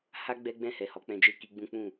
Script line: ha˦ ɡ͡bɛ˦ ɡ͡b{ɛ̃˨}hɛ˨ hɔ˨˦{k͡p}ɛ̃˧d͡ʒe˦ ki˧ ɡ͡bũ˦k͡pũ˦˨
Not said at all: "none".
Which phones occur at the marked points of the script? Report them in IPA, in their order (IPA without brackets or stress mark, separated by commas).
ɛ̃˦˨, k͡p